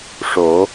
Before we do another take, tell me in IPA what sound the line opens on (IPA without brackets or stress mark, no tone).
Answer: ʂ